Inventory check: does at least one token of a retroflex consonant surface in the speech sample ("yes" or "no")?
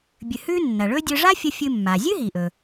yes